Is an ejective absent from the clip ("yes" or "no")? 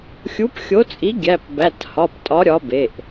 no